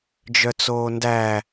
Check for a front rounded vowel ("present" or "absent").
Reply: present